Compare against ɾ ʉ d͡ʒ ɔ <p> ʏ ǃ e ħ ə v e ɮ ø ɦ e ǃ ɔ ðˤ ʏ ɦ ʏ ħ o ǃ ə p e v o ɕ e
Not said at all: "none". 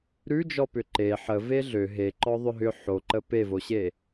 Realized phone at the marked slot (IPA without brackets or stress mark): p